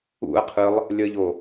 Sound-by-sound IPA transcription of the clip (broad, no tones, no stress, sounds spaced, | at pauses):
ṵ ɐ̯ qʰ ɯ lˠ | lʲ ə ʎ o